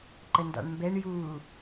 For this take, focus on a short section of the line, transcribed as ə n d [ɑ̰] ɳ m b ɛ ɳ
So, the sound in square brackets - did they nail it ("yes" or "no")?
yes